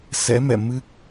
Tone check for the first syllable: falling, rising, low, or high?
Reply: rising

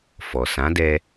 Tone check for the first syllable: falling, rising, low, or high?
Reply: low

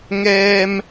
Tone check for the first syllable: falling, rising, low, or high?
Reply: high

